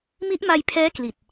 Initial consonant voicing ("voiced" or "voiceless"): voiced